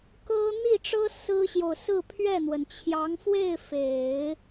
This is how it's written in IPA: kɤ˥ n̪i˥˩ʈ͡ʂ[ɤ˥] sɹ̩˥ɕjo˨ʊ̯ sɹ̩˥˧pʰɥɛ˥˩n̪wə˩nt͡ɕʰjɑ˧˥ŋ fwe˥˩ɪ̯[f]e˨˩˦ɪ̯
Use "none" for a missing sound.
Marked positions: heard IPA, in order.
ɤ˥, f

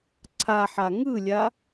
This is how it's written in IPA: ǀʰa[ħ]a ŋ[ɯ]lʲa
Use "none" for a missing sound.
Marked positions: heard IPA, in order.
ħ, ɯ

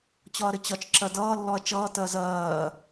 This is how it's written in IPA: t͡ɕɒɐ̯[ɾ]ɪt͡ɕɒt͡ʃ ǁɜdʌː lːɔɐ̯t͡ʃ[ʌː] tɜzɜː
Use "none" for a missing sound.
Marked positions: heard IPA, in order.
ɾ, ʌː

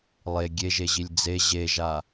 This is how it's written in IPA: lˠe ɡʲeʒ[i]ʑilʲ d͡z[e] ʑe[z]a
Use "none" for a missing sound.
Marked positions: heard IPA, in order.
e, e, ʒ

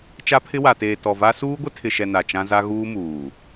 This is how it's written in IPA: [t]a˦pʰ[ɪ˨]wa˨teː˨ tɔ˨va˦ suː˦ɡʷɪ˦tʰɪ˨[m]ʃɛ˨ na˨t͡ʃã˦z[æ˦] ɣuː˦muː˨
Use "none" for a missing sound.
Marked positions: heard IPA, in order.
t͡ʃ, ɪ˦, none, a˦

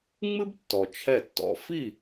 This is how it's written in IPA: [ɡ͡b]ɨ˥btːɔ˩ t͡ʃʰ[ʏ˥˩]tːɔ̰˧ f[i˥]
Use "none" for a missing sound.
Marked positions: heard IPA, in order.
ŋ͡m, ɛ˥˩, i˥˩

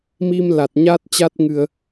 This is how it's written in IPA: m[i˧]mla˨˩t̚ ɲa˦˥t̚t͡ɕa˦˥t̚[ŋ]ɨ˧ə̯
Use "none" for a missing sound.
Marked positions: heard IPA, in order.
i˧, ŋ

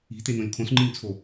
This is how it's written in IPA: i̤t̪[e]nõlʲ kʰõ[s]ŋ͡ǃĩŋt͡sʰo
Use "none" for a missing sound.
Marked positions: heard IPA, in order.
e, s

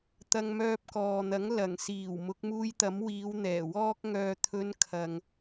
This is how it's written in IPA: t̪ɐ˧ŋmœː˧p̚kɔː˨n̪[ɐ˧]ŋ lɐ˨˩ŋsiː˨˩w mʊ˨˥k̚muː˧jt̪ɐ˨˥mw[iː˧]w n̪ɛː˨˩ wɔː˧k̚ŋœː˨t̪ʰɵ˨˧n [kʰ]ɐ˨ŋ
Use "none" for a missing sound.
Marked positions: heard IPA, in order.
ɐ˨˥, iː˨˧, kʰ

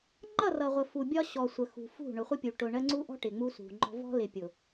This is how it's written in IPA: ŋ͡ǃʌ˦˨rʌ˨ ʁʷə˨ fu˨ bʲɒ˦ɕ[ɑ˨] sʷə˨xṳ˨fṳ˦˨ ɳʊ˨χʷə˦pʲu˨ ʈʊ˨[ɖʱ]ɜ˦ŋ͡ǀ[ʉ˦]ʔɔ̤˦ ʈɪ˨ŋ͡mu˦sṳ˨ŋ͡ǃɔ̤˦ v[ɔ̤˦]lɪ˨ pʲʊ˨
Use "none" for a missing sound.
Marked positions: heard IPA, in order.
ɔ˨, ɳ, u˦, ɔ̤˦

